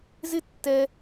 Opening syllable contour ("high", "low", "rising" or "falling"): high